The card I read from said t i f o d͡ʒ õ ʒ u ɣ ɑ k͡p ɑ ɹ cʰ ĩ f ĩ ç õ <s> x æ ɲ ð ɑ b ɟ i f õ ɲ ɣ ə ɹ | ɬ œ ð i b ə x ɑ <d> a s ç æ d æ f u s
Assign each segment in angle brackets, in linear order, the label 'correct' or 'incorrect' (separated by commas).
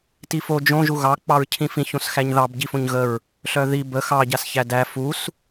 correct, incorrect